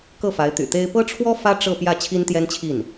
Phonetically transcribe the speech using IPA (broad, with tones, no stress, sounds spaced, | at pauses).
k ɤ˥˩ f a˧˥ ɪ̯ t̪ y̰˨˩ t̪ e˥ ɪ̯ p ɤ˥ ʈ͡ʂʰ w ɔ˥ f ä˥ ʈ͡ʂ ɤ˥˧ p j ä˥˩ t͡ɕʰ i˥ n t̪ j ɛ˥ n t͡ɕʰ i˥˩ n